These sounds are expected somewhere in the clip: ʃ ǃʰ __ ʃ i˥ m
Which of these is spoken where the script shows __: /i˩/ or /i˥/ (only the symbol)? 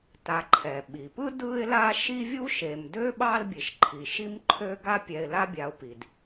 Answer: i˩